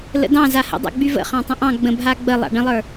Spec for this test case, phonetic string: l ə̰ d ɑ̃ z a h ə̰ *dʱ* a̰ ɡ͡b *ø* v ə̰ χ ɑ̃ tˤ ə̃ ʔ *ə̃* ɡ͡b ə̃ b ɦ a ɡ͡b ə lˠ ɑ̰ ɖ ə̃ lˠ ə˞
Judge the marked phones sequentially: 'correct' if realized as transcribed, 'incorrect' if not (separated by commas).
incorrect, incorrect, incorrect